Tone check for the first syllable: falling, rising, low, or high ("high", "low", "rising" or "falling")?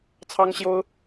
high